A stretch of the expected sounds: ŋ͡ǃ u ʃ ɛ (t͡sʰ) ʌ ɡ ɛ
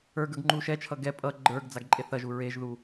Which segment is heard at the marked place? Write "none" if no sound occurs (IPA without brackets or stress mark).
t͡ʃʰ